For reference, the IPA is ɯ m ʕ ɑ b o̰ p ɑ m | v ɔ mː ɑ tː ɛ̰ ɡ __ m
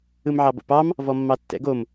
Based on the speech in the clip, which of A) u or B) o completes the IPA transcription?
B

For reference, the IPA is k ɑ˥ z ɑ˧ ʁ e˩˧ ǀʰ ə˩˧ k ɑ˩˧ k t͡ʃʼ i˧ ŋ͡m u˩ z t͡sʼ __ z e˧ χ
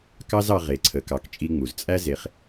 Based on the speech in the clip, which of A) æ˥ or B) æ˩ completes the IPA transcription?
A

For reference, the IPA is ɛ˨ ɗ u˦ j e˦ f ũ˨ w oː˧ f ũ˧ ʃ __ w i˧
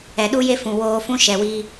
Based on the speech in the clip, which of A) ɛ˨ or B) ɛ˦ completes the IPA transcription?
A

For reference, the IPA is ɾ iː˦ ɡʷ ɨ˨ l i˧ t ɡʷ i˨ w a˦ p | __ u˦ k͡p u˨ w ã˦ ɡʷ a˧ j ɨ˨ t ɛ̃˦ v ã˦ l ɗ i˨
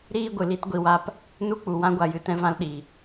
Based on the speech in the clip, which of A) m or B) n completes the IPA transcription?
B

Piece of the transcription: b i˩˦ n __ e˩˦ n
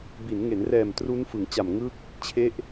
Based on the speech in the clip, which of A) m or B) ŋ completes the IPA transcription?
B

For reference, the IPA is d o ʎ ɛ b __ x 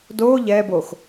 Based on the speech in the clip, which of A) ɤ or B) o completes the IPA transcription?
B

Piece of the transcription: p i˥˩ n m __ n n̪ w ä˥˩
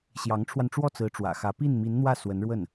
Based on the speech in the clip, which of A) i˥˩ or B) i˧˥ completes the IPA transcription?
B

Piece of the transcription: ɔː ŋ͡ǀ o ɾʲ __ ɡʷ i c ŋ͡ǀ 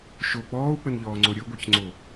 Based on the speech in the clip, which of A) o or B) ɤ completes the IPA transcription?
B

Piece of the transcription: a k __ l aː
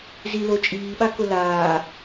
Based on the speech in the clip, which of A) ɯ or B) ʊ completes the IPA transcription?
B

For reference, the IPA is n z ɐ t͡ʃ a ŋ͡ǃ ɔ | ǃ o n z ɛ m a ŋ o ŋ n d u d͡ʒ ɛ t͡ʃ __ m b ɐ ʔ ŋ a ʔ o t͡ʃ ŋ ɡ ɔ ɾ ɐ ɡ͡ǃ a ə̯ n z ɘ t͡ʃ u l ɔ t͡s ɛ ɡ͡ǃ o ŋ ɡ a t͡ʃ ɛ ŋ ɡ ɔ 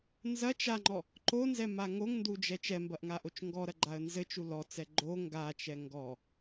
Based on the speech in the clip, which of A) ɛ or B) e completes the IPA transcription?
A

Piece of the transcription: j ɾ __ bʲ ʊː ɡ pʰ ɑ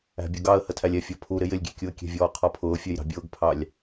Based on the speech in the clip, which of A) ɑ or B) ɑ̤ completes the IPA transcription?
B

